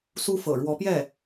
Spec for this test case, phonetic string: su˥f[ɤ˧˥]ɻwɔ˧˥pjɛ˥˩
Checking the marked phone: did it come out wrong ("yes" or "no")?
yes